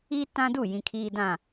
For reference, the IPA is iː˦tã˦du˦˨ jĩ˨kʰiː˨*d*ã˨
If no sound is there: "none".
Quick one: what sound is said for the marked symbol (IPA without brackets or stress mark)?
d